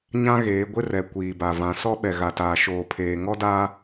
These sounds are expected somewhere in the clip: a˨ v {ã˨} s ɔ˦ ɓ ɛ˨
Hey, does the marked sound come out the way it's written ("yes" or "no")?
yes